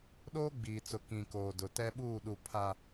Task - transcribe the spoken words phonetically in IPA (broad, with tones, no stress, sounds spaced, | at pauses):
ɗ oː˦ ɡ͡b iː˨ t͡s ʊ˨ k ĩ˨ k oː˨ d ʊ˨ t ɛ˦ ɓ uː˦˨ ɗ u˨ pʰ a˨